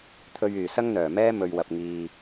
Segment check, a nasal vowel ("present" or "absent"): absent